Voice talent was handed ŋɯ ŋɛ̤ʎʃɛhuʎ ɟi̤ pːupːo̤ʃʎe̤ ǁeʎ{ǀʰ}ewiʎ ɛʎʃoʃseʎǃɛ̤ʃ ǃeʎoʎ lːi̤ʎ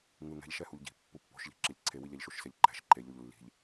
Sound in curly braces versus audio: correct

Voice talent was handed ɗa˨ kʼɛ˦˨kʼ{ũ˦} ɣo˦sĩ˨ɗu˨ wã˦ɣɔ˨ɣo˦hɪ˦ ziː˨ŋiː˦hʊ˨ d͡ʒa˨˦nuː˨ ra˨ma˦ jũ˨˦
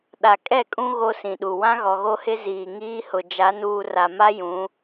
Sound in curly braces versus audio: correct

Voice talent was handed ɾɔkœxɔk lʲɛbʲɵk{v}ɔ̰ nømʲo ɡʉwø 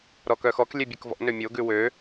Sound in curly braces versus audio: correct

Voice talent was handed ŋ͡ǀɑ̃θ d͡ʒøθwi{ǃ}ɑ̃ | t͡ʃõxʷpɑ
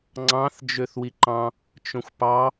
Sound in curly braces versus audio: correct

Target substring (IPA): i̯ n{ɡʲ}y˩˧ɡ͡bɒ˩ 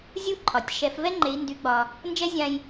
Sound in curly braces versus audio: incorrect: d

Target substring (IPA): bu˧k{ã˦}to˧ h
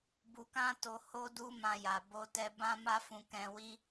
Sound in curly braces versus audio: correct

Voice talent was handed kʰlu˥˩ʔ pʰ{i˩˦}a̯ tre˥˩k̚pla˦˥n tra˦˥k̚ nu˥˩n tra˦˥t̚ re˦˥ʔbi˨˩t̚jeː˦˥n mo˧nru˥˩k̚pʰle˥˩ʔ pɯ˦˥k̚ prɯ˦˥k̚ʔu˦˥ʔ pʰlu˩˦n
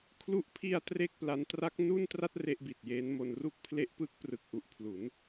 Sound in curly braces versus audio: incorrect: i˧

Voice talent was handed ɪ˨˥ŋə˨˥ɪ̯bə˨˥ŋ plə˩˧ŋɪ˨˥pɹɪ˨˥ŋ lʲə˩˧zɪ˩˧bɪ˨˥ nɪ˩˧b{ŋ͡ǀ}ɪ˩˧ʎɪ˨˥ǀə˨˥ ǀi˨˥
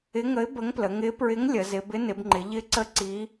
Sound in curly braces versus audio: incorrect: ŋ͡ǃ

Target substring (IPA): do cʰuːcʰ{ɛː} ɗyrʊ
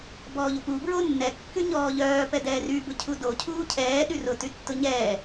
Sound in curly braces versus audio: correct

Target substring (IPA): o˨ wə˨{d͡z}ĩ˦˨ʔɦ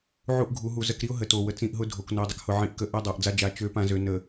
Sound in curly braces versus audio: incorrect: t͡s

